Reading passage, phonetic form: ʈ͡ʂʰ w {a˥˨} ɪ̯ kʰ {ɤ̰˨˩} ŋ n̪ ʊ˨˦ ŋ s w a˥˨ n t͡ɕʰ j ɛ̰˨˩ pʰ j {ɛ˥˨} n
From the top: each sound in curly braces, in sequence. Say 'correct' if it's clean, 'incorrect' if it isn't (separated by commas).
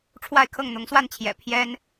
correct, incorrect, incorrect